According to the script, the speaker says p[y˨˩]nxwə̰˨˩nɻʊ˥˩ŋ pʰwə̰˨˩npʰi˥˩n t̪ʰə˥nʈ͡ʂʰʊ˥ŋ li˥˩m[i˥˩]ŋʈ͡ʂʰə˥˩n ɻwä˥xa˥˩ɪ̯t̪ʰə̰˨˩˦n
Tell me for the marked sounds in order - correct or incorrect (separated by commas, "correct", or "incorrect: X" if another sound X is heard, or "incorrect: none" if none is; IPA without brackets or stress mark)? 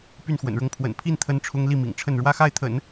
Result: incorrect: y˥˩, incorrect: ḭ˨˩